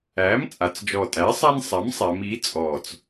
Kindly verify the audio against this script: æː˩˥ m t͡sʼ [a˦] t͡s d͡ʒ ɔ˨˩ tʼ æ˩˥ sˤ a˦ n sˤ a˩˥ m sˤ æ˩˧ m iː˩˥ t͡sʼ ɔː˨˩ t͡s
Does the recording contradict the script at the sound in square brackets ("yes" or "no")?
yes